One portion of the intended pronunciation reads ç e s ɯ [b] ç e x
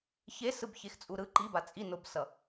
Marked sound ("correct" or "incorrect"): correct